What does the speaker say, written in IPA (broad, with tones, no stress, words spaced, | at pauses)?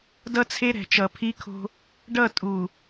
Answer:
dʌ˦t͡sʰe˦ ɾɛ̤˨t͡ʃʌ˨pʰi˦kʰo̤˦ | ɖʌ˦˨tʼu˨